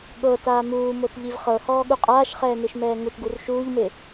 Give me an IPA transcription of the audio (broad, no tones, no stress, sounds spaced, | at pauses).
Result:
ɠ ɤ t aː m uː m o t ʎ i v χ ɤ h ɔː ɠ u qʼ aː ʃ χ ɛː n ɯ ʃ m ɛː ŋ u t ɡ u r ʃ uː ʎ m e